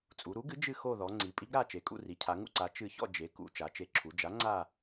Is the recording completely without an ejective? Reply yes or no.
no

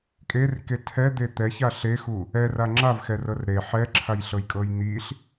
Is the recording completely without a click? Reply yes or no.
no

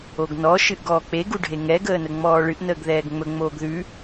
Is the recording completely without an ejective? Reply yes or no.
yes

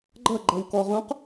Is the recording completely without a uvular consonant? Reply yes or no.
no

